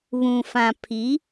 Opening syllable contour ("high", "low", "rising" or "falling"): low